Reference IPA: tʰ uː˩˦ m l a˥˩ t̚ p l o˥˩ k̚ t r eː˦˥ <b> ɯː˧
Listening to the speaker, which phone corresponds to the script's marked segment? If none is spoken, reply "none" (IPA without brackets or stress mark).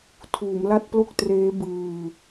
b